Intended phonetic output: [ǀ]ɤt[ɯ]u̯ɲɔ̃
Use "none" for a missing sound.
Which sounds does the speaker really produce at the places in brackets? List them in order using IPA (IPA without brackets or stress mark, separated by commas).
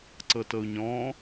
ǀ, ɤ